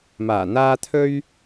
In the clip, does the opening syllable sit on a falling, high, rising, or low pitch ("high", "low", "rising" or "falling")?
low